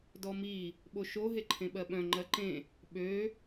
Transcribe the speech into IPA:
dɔmi | ɓoʃo ɦeǃʰẽɓɜɓœ̃ ŋ͡ǃɜǃẽ | ɓø

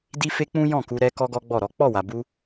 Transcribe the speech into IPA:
di˦fe˦k͡pũ˦ jɔ̃˦˨ku˧ɾɛ˧ kɔ˦ɡɔ˦ɡ͡bɔ˦˨ɾɔ˨˦ k͡pɔ˦˨wa˨bu˧

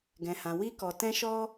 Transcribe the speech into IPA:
ɡɛ̃˨hã˨ wi˧kɔ˨ tɛ̃˧ʃɔ˧

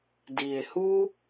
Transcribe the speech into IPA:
di˨˩e̯hu˥

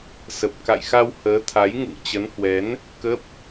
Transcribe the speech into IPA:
sə˨˩p̚ka̰˧˨jxa˧w həː˨˦t̪ʰa˨˦jŋṵ˧˨ŋ t͡ɕə˨˦nhwɛ˨˦n | kə˦˥p̚

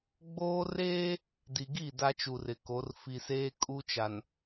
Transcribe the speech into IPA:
ɡ͡boː˦ reː˦ | di˨ɡi˦˨ da˦t͡ʃu˨rɪ˨ko˨˦r fi˨seː˦ kʼu˦t͡ʃa˨n

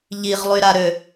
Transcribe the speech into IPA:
ʎiʁlˠyɾaɾø

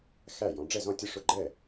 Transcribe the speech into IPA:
xæ˥˩jɔ̃˨˦ ɖ͡ʐɛ˥˩zɔ̃˥˩tʲʊ˥˩ ʂʊ˥˩ɡ͡ǃɛ˥˩

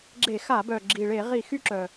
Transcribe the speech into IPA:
ɡ͡ǁe˧˩˧xa˧˩˧bœ˨˩ ɡ͡ǁi˨˩ɭe˧˩˧ʁi˧˩˧ xy˦ǁœ˨˩

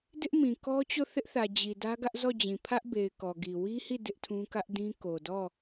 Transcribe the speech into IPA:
dɪ˦ʔmĩ˨kɔ˦ t͡ɕo˦˨θɪ˦ʔθä˨ d͡ʑi˨dä˦ɡä˦ʔ zɔ˦˨d͡ʑĩ˨ pʰä˦ʔbe˨ɪ̯ kɔ˨ɡi˨ wi˦hi˦˨ dɪ˦ʔtʰũ˦ kä˦ʔdĩ˦ ko˨dɔ˦˨

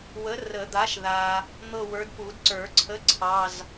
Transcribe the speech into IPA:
wə˨˥rə˨˩˦d̪a˨˥ʃða˨ | n̪ɤ˥˧wə˞˨˥d pu˨˩˦dǀə˞˨˩˦ǀʰə˧˥˧ ǀʰɑ˧˥˧z

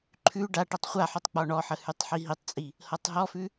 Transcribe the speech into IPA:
ǃʰʉ ɖa ʈɤtˤχʷaħʉtˤ k͡pɔɳɔħə hʉtˤħiɦitˤt͡sʼi | hɤtˤɦɔfʉ

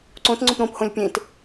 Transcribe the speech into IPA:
ǀõt ŋ͡ǀõpɾõphõlʲ pʲẽt

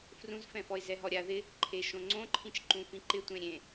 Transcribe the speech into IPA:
frũzfɛ̃fɔɪ̯ zɛɦɔɾʲa ðɪ | ǃʰeʃõŋ͡ǀõǃʰĩt͡ʃ ǃũfĩǃɪtʷẽ ɾʲẽ

